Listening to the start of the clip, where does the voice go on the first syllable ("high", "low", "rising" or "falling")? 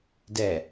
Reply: low